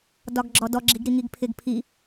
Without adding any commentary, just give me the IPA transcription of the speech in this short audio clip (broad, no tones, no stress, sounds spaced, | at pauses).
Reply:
d ɒ ɡ ɡ͡ǁ ɔ d ɔ ɡ͡ǁ i ɡ ɾ i ŋ i ɡ pʰ ɪ ɡ pʰ i